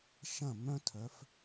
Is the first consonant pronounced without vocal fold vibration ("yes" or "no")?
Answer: yes